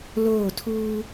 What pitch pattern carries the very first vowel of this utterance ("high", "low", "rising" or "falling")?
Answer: falling